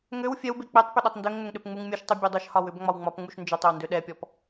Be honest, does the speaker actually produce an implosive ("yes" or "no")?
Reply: yes